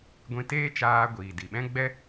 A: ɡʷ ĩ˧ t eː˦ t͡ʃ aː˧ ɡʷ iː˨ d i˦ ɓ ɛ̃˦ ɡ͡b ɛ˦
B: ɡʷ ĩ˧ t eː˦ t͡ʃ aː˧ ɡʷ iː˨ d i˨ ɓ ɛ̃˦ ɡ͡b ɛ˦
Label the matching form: B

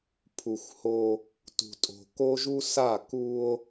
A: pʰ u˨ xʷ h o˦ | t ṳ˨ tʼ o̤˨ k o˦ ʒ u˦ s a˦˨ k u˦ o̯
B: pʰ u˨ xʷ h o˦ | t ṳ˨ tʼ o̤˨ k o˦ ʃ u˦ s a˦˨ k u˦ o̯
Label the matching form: A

